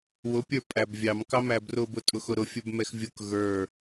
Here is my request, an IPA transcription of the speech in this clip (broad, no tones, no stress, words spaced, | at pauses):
wʊ pʲə˞pʼæbvʲɑm kɑmæbrʊ bʊtʼʊxʊɾʊ fʲə˞bmɛxvʲʊk ɣə˞